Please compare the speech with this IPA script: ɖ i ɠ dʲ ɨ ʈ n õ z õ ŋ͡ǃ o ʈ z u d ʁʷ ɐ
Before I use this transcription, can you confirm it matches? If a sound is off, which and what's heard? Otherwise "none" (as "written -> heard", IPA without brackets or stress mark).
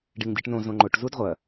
ɠ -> ŋ